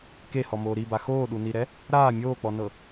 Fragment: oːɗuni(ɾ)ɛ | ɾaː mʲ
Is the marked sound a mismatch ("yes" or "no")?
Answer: no